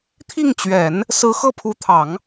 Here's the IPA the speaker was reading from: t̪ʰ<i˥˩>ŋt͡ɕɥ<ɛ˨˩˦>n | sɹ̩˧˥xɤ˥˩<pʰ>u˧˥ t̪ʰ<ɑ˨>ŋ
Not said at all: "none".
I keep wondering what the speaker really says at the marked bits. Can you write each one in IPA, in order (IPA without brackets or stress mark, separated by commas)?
i˥˩, ɛ˨˩˦, pʰ, ɑ˨˩˦